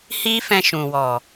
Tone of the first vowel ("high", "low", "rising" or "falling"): high